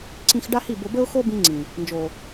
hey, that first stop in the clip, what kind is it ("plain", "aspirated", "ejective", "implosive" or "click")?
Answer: click